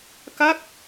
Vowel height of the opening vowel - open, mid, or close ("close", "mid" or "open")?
open